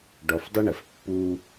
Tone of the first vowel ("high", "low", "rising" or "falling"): low